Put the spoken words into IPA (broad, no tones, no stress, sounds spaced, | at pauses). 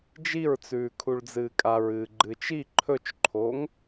d͡ʒ i ɹ t͡s ʉː kʰ u ɭ d͡z ɨː kʼ a ɹ ɨː ɡ͡ǃ ɨː t͡ʃ i ǃʰ ɵ t͡ʃ ǃʰ oː ŋ